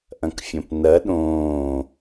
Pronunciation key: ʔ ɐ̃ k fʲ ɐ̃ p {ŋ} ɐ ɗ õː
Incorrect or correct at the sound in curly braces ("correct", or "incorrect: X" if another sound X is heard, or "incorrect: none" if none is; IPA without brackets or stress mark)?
incorrect: n